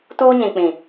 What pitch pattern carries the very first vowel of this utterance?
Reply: high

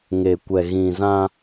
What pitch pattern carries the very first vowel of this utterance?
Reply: low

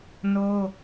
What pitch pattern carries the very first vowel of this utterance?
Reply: high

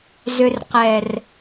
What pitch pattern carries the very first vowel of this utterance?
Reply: low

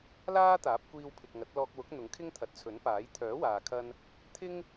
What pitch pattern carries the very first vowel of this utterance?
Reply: high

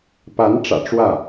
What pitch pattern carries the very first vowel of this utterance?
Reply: rising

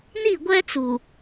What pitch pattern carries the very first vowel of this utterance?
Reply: falling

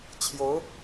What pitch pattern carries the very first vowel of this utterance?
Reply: rising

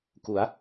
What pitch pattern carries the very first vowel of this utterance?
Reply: rising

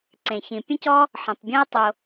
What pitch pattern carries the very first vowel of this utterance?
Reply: low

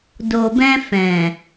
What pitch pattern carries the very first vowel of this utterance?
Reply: low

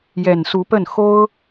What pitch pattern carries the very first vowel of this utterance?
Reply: low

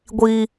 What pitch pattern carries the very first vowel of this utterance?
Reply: low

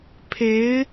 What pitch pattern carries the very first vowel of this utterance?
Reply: rising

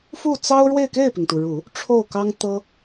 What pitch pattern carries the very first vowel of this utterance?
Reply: falling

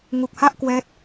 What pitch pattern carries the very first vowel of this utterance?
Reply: low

